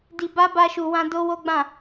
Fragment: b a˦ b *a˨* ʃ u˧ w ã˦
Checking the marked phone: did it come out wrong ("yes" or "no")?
yes